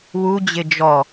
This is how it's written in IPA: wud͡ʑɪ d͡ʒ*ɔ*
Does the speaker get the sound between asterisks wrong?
no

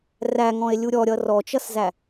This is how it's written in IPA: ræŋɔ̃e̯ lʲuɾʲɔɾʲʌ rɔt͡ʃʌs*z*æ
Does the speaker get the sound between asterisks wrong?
no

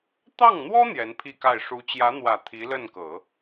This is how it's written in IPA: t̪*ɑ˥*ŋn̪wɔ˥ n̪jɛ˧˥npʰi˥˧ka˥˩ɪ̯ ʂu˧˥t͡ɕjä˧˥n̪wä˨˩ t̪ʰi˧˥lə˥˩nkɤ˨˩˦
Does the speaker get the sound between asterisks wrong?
yes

